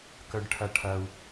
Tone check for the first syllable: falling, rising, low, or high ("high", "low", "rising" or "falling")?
low